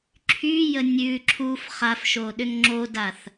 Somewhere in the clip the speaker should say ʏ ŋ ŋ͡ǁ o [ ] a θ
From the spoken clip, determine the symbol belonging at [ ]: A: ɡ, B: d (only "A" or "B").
B